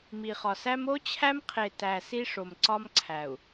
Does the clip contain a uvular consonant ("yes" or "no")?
yes